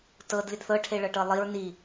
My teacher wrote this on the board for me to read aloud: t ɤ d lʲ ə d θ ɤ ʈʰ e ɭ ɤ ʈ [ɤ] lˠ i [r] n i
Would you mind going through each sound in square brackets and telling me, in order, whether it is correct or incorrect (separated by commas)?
correct, incorrect